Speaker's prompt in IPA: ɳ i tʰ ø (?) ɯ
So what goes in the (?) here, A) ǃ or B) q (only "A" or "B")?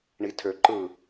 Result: A